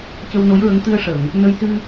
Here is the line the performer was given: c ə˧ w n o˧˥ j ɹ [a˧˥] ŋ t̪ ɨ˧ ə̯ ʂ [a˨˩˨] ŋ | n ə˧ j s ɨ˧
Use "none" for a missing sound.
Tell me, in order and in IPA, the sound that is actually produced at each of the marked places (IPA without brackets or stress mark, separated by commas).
ə˧˥, ə˨˩˨